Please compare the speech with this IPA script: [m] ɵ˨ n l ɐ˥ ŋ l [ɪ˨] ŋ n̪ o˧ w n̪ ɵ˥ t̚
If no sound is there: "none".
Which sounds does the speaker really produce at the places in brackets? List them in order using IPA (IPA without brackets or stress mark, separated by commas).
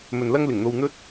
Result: m, ɪ˨˩